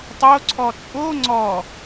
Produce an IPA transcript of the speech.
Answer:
tˤ o ǀʰ ɔ t͡sʼ o ŋ͡ǀ ɔ

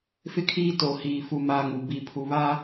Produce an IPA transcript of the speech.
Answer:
f ɪ˦ kʰ iː˦ t o˨ h iː˨ f u˦ m aː˦ ŋ u˨ b i˨ pʰ u˨ β a˦

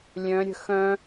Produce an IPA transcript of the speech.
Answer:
lʲ œ̃ ɾʲ ə̤ x œ̃

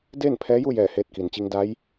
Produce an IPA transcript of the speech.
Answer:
d eː˥˨ n pʰ ɛː˧˥ j u˥˨ j ɛː˧˩ h eː˧ t̚ k i˩ n t͡ɕ i˧ ŋ d a˧˥ j

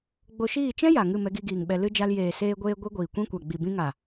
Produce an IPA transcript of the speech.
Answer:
ɡ͡b o˧ ʃ iː˦˨ t͡ʃ ɛ̃˦ j a˨ ŋ ɨ˦˨ m ɛ˧ ɡ i˧ ɡ iː˨ ŋ ɓ ɛ˧ l ɨ˧ d͡ʒ a˧ l j eː˨ s eː˧ ɡʷ eː˧ ɡʷ i˦ ɡʷ iː˨ kʷ ĩ˦ kʷ a˨ ɡ͡b i˨ b ĩ˧ ŋ a˨

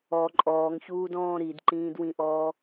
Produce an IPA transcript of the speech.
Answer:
ɔ ǃʼ ɔː ŋ ç uː d ɔ̃ː ɾ i d ǃ ĩː d w ĩ ʔ ɔː

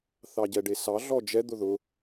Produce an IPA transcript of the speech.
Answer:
θ ɑ ɟ ɛ ɖ e s ɑ ɮ ɔ d͡ʒ ɛ d̪ ʊ ð ʊ

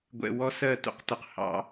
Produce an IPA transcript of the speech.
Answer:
ɡʷ ɛ̰˨ w ɔ˦ s ɜ˦˨ t ṵ˦ q t ə˨ q h ɑ̰˦

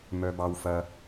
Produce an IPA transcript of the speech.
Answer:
m œ˥ b ɑ˥ w f ɐ˥

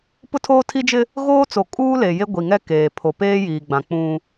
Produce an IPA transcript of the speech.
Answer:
p ʊ˦ tʰ oː˦ tʰ i˦ d͡ʒ ɪ˦ | ɣ oː˦ t͡s o˨ kʼ uː˦ l e˨ j e˦ ɡʷ i˨ ŋ ɛ˦ k eː˨ pʰ o˨ p eː˦ j iː˨ ɡ͡b ã˨ k͡p ũ˦

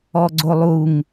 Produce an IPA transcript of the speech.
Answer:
ɔ ɡ͡ǀ o lˠ u ŋ

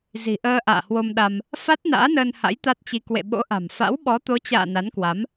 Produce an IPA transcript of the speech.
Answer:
z i̤˨˩ ʔ əː˧ ʔ a̰ː˧˨ h w o˧ m ɗ a˧ m | f a˦˥ t̚ n a̰ː˧˥ n əː˧ n h a̰˧˥ j t̪ a˦˥ t̚ t͡ɕ i˧ k w ḛ˧˨ ɓ o̰˧˥ ʔ a̤˨˩ m f a̰˧˥ w ɓ ɔ˨˦ t̪ o˨˦ t͡ɕ a̰ː˧˨ n a˨˦ n k w a˨˦ m

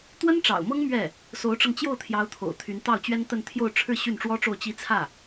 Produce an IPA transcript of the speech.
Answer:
t̪ w ə˥ n ʈ͡ʂ ɑ̰˨˩ ʊ̯ m ɤ˥ ŋ m ɥ ɛ˥˩ | s o˧˥ ʊ̯ ʈ͡ʂ ɤ˧ ŋ t͡ɕ j o˥˩ ʊ̯ t̪ʰ j ɑ˧˥ ʊ̯ t̪ʰ o̰˨˩ ʊ̯ t̪ʰ y˧˥ n t̪ ɑ˥˩ ʊ̯ t͡ɕ ɥ ɛ˥ n t̪ ə˥˧ n t̪ʰ j o˥˧ ʊ̯ ʈ͡ʂʰ ɻ̩˥˧ ɕ y˥˩ n ʈ͡ʂ w ɔ˥ ʈ͡ʂ o˥˩ ʊ̯ t͡ɕ i˥ t͡sʰ ä˥˩

